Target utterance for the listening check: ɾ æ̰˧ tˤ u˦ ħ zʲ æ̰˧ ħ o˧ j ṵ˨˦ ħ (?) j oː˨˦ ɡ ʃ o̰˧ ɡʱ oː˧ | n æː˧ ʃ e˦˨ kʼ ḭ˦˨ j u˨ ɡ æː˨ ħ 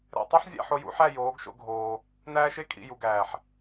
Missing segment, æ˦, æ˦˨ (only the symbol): æ˦˨